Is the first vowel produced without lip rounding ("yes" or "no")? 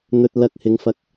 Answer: no